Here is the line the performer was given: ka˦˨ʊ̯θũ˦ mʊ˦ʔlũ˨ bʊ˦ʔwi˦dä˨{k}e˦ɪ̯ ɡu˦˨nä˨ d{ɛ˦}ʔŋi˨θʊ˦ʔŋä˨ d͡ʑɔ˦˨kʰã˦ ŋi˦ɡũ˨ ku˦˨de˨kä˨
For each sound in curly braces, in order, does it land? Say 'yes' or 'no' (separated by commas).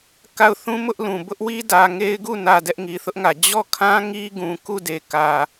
no, yes